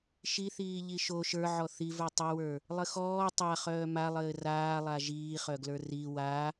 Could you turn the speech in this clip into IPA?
ʃiθiː ʎiʃo ʃə˞ʕɔ θivə˞ tˤɘwə˞ | lˠɘxɔː tˤa χœːmalˠɘː raːlˠa ʒiːχœɡlə˞ ri wa

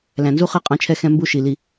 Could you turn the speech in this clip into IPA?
læ̃˨nzu˦χɜ˦ qʼɑ̃˦t͡ʃʰɛ˦ xɛ̃˦mbu˦ʃi˨li˦

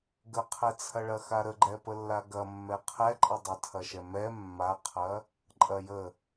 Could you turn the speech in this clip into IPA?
ɡəqʰɛt͡sʰɐɭɐ xaɾəɡ͡ǃɛ pəlːaɡɐ mːɛqʰɛǃʼɐ dˤətʰɐʃɛ mɛ mːaqʰɐ | ǃʼɐjə

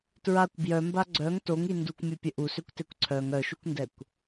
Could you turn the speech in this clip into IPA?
tɹakʷ bjœmba ɡ͡ǀœŋ toŋi ndukʷmʲopʲə ʔusøkʷtekʷ ǀʰœŋ œʃukʷndɛkʷ

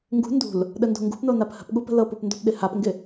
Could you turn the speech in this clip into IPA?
ŋɡṳ ndṳl | ɗəndo̤ŋɡṳpno naphə̤pɠu pə̤lɤpup ndopɗɪhapŋɡɪ

